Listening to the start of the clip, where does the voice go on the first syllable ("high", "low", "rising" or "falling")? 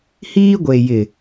high